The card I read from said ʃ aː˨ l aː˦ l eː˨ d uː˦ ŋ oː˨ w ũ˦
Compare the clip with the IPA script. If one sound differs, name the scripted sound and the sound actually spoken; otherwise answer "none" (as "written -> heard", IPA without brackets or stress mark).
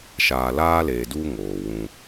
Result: none